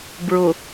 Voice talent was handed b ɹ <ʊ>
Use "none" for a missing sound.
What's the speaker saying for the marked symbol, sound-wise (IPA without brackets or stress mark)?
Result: ʊ